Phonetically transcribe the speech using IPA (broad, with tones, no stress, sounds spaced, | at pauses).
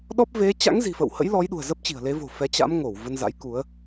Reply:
ɗ ɔ˦˥ p̚ v e˨˦ t͡ɕ a̰˧˥ ŋ z i̤˨˩ f ə̰˧˨ w h ə̰˧˥ j l ɔ˨˦ j ɗ ṳ˨˩ ə̯ z ə˦˥ p̚ t͡ɕ i̤˨˩ ə̯ l e˨˦ v o̤˨˩ f ɛ˨˦ t͡ɕ a̰˧˥ m ŋ o˧˩ w v ə˧ n z a̰˧˥ j k u˨˦ ə̯